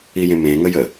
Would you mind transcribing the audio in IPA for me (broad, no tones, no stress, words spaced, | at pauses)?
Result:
ijẽmẽ ŋəjə